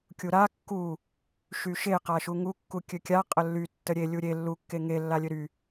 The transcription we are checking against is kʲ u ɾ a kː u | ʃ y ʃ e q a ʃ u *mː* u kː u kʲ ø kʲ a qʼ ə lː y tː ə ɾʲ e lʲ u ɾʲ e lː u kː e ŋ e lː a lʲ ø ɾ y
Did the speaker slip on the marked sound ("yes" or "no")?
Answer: yes